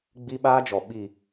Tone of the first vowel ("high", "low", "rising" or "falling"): high